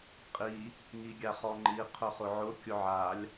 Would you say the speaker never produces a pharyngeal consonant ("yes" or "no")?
no